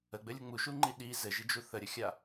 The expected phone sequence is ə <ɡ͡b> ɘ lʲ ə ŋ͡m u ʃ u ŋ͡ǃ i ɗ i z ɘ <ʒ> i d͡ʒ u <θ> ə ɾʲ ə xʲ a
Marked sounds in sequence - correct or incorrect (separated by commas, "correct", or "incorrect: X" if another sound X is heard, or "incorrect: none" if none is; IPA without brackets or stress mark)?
correct, correct, correct